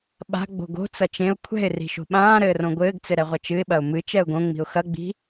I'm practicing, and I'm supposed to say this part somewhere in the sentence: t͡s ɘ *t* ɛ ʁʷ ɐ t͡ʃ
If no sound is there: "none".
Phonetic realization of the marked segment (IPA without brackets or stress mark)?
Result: ɾ